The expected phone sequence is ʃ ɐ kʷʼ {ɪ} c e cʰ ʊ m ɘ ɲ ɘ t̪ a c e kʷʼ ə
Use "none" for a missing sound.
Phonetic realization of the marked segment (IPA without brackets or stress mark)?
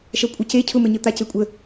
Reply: ə